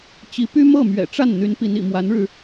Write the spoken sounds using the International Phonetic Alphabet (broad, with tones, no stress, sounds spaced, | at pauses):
t͡ɕ i˧˥ p y˥ m ɤ˥˩ m ɥ ɛ̰˨˩ ʈ͡ʂ a˥˩ n n̪ y˧˥ n p i˧˥ n ḭ˨˩ m w a˧˥ n ɻ ɻ̩˧